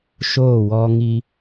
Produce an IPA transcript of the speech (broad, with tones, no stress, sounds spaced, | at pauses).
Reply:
ʃ oː˦˨ w ɔ˦ ŋ i˦